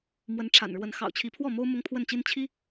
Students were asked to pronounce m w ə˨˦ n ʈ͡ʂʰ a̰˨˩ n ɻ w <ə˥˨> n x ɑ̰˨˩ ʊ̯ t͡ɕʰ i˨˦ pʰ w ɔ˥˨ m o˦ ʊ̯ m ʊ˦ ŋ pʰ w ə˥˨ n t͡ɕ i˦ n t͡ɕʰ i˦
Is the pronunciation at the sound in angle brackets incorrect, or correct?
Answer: incorrect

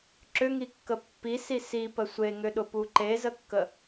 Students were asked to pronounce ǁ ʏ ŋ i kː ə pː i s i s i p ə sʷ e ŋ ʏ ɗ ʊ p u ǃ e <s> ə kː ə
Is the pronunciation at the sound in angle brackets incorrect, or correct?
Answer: incorrect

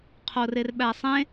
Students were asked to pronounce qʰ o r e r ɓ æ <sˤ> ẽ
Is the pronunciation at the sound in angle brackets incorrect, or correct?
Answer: correct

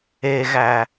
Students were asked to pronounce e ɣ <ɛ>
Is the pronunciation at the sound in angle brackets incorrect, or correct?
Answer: incorrect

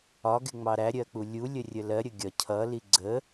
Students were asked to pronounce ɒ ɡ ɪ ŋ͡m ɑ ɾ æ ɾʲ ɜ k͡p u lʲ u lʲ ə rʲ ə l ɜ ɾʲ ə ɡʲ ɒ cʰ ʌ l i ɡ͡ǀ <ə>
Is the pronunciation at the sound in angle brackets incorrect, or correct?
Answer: correct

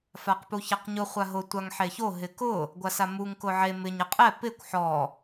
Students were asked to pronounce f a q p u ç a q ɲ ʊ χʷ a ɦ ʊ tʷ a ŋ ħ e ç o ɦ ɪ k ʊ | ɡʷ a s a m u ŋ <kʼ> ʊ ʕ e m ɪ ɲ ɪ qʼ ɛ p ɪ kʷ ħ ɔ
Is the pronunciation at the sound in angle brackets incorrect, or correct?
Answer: incorrect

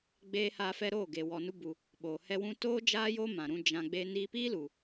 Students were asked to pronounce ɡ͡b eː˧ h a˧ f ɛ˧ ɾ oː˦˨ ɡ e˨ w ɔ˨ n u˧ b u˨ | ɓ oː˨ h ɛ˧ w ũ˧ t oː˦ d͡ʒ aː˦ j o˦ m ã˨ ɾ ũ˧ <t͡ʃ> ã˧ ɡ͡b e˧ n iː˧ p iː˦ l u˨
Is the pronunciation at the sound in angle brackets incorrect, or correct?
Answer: incorrect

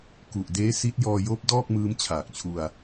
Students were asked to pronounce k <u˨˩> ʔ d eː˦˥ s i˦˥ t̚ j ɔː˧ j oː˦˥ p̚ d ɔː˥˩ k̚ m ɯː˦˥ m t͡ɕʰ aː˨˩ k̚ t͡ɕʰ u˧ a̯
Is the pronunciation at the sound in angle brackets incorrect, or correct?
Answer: correct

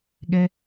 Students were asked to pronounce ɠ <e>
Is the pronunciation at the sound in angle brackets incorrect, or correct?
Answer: incorrect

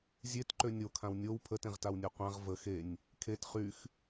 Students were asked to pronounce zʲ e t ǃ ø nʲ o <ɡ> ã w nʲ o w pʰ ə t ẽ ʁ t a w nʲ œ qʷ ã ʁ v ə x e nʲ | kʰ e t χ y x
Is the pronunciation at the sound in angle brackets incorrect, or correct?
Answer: incorrect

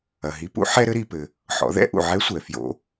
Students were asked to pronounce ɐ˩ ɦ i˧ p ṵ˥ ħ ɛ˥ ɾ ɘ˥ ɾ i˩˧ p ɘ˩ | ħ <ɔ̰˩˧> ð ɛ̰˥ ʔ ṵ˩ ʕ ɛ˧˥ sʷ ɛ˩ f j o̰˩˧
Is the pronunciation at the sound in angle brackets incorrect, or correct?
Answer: correct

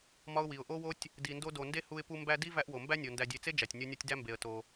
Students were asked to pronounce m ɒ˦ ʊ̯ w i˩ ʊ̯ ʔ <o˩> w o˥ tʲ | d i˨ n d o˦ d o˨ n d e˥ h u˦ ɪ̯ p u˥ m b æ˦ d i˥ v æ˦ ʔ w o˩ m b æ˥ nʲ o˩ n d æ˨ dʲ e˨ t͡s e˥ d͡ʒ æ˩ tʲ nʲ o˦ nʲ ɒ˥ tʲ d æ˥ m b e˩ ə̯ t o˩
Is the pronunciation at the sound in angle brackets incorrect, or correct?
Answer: incorrect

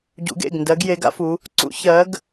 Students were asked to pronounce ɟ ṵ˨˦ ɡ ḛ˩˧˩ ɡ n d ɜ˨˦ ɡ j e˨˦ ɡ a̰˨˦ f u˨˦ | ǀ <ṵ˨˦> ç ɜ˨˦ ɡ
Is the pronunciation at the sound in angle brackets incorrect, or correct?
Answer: correct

